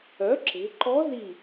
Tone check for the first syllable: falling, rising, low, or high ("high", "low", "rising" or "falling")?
rising